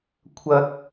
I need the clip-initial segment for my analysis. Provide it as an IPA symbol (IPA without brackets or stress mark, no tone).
kʷʰ